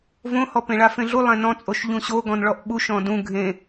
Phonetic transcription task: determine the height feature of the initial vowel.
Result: mid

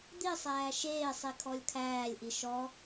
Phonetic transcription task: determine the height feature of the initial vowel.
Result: high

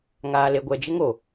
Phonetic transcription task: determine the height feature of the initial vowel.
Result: low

